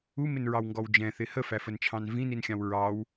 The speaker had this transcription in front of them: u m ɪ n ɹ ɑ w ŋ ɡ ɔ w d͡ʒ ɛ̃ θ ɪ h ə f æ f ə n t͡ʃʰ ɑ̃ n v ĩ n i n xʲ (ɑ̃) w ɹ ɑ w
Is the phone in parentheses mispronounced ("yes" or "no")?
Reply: no